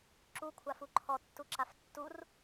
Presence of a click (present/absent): present